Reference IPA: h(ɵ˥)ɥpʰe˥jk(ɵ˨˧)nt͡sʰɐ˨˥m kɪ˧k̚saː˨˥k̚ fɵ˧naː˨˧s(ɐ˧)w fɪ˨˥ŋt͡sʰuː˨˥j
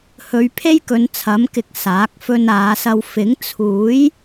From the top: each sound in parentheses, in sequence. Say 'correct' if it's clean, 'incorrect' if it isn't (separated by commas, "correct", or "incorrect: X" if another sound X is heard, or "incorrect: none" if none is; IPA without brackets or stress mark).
incorrect: ɵ˨˧, correct, correct